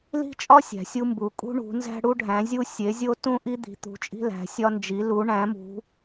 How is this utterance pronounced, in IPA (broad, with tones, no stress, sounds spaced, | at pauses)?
l i̤˦ t͡ʃʼ ɒ˦ sʲ æ̤˨˦ sʲ u˦ m b u˨˦ kʼ ṳ˦ ɳ ṳ˨˦ n z æ̤˦ ɽ u˦ ɖʱ æ̃˨˦ zʲ u˦ sʲ e˨˦ zʲ o˦ t ũ˦ ʔ i˦ d̪ i̤˨˦ t̪ ṳ˨˦ t͡ʃʼ i̤˦ l æ̤˨˦ sʲ ɒ˦ n d͡ʒ i˨˦ l u˨˦ ɳ æ̃˨˦ m ṳ˨˦